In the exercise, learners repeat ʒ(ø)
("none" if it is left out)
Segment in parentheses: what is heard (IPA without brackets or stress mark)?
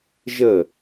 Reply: ə